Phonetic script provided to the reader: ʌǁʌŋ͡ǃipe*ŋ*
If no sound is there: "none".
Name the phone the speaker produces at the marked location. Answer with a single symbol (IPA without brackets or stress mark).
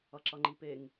ŋ